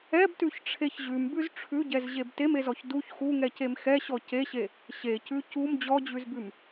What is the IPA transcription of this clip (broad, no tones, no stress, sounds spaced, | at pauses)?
ɛ b t ʉ ç ʈ͡ʂʰ e ç ʑ ʉ m b ʉ z ʈ͡ʂʰ ʉ ɟ ɛ z ʑ e b t e m e z ɔ ç d u ç x u ŋ ɛ c e m x ɛ ɕ ɔ c e ɕ e | ɕ e c ʉ c u m d͡ʑ ɔ d͡ʑ ʉ z b ʉ m